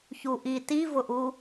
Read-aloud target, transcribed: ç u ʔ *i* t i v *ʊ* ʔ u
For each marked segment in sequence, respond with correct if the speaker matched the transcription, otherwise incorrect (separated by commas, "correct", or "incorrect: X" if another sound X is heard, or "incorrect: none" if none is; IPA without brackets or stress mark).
correct, correct